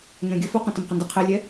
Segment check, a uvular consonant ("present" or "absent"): present